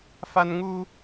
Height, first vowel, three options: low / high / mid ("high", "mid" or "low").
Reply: low